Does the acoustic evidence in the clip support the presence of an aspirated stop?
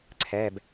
yes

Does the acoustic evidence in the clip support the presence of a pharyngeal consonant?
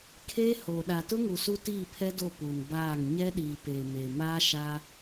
no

